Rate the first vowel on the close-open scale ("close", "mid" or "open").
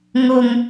close